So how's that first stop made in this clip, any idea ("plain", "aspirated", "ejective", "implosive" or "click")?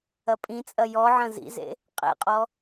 ejective